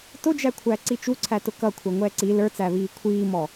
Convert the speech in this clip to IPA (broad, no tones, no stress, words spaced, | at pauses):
tʊd͡ʒækʷʰæ ǀit͡ʃuǀʰæ tʊkʌkʷʰɛ ŋʷɛːǀi lə˞t͡sæβiː kʷʰiːmɔ